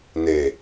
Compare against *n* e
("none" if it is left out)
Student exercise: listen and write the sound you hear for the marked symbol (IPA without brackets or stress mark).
n